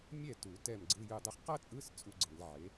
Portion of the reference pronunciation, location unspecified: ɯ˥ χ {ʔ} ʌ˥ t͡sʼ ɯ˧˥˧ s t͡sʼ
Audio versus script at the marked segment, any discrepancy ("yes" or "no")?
yes